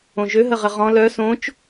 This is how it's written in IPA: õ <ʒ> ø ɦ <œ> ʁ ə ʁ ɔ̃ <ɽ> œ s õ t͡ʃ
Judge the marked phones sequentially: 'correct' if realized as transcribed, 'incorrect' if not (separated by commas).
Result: correct, incorrect, incorrect